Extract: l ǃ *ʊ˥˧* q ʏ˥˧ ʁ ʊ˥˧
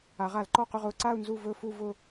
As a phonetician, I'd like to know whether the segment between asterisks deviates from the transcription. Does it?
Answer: yes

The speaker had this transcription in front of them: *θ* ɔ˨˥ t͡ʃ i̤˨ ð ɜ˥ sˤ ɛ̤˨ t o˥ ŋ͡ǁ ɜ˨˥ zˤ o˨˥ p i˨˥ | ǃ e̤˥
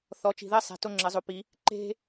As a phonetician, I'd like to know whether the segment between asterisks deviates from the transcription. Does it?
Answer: no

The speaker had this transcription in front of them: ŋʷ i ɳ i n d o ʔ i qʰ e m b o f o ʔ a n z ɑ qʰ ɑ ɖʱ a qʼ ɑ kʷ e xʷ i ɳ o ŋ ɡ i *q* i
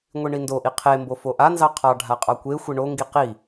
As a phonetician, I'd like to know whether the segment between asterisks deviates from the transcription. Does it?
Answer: no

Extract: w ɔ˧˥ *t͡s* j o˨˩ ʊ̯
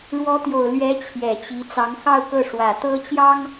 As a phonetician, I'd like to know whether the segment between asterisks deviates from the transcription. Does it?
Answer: yes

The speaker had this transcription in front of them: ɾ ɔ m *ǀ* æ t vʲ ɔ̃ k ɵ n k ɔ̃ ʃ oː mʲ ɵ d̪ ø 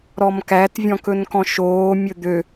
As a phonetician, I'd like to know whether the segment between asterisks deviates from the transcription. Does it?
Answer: yes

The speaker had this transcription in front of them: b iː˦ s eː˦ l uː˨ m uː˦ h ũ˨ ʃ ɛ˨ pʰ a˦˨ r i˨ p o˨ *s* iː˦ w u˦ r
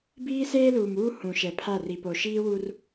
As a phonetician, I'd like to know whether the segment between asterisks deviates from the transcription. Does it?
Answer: yes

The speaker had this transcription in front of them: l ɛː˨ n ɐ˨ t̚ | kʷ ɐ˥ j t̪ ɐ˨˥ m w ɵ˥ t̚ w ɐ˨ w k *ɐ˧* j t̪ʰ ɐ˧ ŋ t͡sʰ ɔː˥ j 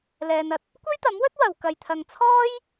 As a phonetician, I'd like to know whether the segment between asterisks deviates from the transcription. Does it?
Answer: no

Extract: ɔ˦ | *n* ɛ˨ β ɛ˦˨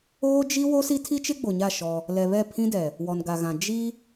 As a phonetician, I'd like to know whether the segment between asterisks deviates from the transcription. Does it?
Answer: yes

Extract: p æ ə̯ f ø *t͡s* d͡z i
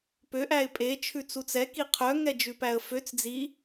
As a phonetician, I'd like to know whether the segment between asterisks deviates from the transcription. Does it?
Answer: no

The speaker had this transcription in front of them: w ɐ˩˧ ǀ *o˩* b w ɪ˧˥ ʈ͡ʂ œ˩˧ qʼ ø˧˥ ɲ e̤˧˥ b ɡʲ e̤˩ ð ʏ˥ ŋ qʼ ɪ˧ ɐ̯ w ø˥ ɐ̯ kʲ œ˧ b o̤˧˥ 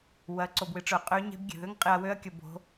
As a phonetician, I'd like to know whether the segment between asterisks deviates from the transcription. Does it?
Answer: no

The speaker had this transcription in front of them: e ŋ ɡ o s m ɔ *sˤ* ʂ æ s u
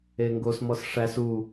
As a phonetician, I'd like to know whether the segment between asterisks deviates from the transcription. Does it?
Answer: yes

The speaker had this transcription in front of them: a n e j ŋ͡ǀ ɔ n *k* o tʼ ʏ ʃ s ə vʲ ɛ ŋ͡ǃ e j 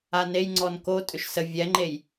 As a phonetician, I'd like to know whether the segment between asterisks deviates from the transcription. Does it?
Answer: no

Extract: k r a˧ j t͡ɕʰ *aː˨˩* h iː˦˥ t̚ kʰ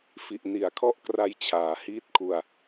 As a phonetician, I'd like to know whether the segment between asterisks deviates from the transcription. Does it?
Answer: yes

